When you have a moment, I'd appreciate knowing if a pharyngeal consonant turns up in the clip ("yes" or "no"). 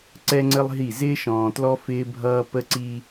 no